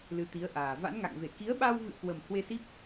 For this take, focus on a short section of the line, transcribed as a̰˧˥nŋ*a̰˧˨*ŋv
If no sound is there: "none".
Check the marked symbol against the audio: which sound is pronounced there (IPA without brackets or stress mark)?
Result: a̰˧˨